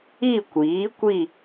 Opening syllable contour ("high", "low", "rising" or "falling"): falling